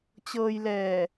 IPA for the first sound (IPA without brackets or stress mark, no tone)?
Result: t͡ɕ